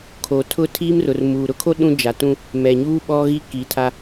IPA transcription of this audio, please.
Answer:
kʰ o˨ tʰ ʊ˦ tʰ iː˦ m r ʊ˨ r m uː˨ ɾ ʊ˦ kʰ o˦ ɗ ũ˦ d͡ʒ a˨ t ũ˦ | m ɛ˨ ɲ uː˦ ɓ ɔ˦ ɣ i˦ k iː˨ tʰ a˦

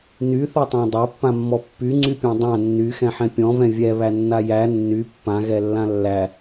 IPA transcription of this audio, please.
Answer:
n y θ ɔ tˤ æ̃ dˤ a pː ã mː ɔ pː y ŋ͡ǀ y pʲ ã dˤ ã nː y x ɛ̃ ħ ɛ̃ pʲ ɔ̃ v ɛ̃ vʲ ɛ β æ nː a j æ nː y pː ã ɣ ɛ lː ã lː æ

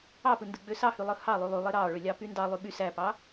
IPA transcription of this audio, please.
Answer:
ɑ p ɯ n d ɯ ɡ͡b ø s ɑ h y lˠ ɯ h ɑ lˠ y lˠ y lˠ e ɾ ɑ ɭ ø lʲ ɑ p y n d ɑ lˠ y ɓ y s æ p ɑ

